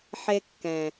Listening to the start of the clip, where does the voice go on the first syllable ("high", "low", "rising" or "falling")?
high